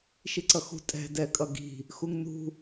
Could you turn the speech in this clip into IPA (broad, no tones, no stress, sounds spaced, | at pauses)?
ʃ i ǀ ʌ x ṳ tʼ ɛ̤ d ɛ kʼ ʌ ɡ i̤ | x u ŋ n ṳ